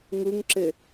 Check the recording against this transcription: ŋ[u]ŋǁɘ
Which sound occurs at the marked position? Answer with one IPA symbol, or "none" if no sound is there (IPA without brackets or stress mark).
u